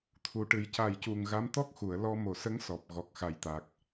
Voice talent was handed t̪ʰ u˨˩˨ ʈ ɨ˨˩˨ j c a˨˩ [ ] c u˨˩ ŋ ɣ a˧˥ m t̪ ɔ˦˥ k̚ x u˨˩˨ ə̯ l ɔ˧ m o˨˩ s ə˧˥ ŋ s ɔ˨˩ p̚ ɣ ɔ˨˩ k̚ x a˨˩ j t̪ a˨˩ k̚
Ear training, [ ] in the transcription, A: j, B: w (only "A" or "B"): A